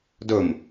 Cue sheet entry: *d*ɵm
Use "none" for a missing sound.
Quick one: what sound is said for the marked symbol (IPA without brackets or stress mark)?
d